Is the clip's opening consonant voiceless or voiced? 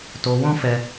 voiceless